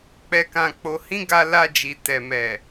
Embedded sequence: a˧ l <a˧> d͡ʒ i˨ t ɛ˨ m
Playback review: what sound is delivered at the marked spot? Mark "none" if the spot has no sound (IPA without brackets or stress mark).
a˧